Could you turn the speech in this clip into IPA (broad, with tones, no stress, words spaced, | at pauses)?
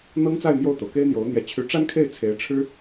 n̪ɤ˥ŋt͡sa˥˧ɪ̯ mjo˥˩ʊ̯t̪o˩ʊ̯ ke˥ɪ̯n̪jo˧˥ʊ̯n̪jɛ˧˥ t͡ɕʰy˧˥ʈ͡ʂa˥nkʰe˥˩ɪ̯ t͡sʰe˧˥ɪ̯ʈ͡ʂʰɻ̩˥